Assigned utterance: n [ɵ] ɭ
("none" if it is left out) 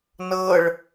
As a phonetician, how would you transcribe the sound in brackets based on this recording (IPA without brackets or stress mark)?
ɤ